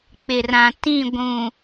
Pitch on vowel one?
low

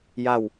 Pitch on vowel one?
falling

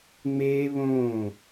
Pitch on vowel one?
high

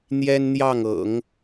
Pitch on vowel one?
high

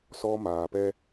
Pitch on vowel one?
high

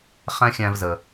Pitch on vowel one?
high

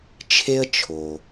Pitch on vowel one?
high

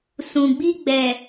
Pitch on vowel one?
low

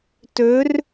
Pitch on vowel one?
rising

